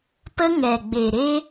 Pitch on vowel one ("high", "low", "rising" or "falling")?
high